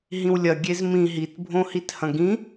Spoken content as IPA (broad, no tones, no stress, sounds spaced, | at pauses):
ɦ ĩ w lʲ ɐ ɡʲ e z m ĩ ɦ i t bʱ õ h i t h ɐ̃ ɡ ĩ